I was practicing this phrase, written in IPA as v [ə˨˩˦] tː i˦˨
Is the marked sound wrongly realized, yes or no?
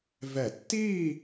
yes